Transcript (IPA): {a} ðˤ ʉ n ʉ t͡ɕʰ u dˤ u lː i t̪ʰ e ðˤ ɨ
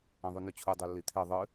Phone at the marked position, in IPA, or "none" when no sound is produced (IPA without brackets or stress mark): ã